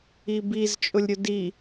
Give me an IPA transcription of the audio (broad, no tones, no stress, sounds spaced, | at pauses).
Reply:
i b i z t͡ʃʼ ʊ lʲ ɾʲ ʊ d i